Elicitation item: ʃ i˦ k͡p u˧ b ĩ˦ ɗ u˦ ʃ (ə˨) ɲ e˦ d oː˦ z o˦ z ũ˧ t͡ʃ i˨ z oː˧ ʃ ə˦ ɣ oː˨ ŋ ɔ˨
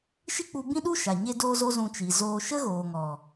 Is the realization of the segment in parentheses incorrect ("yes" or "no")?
yes